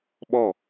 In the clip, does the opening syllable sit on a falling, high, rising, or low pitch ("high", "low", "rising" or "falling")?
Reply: falling